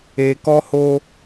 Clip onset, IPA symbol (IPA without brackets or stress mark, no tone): e